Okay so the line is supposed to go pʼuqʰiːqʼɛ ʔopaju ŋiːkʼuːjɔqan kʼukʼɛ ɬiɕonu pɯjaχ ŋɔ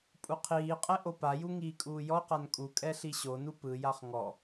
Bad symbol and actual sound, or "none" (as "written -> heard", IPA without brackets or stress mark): none